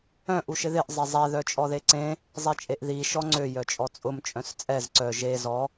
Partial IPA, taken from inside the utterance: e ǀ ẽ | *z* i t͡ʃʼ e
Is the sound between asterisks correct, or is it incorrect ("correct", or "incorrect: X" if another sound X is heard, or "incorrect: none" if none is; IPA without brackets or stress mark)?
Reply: incorrect: zˤ